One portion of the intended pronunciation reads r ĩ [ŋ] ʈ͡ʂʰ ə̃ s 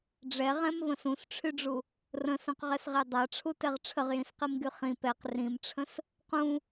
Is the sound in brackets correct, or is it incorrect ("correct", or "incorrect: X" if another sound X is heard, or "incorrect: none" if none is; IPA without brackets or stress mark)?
incorrect: m